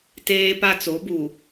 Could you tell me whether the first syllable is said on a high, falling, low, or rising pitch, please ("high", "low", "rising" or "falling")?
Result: high